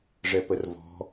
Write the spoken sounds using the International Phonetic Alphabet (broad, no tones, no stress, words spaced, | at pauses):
ʐɛpərvɔ̤